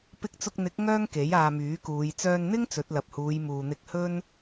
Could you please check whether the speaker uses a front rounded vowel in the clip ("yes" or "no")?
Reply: yes